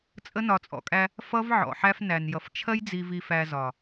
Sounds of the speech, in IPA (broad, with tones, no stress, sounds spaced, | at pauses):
t͡sʼ ə˦ n ɒ˨ t͡sʼ ɔ̰˨ kʼ æ˦ | f ʌ˦ v ʕ ɔ̰˨ ħ æ˦ f n æ˨ n j ʌ˨ f t͡ʃʰ ɜ˦ j d͡z i˨ v i˨ f æ˨ z ɒ˨